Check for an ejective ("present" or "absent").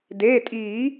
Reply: present